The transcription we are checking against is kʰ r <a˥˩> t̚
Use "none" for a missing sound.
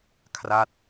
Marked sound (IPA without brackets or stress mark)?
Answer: a˥˩